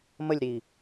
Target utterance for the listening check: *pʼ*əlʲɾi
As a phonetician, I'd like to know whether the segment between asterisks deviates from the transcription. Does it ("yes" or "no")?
yes